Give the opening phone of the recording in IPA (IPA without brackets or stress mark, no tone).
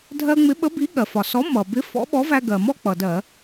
dʱ